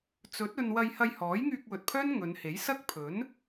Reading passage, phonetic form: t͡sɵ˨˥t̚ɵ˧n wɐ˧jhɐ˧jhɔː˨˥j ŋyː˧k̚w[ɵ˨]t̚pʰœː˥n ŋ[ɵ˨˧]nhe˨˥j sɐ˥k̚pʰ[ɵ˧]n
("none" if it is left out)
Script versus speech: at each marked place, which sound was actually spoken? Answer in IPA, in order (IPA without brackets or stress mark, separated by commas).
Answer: ɵ˨, ɵ˨˧, ɵ˨˥